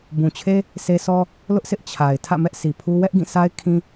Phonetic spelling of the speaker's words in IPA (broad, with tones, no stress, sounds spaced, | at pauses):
b ũ˨ t͡ɕʰ e˦ | s e˦ s ɔ˦ | l ʊ˦ ʔ s ɪ˦ ʔ t͡ɕʰ a˨ ɪ̯ tʰ ä̰˦˨ m ɛ˦ ʔ s i˨ pʰ u˦ w ɛ˦ ʔ ɡ ĩ˦˨ sʰ a˦ ɪ̯ kʰ ĩ˦